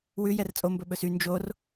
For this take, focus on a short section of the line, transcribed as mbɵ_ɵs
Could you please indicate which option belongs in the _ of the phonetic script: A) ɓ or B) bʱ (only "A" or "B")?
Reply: A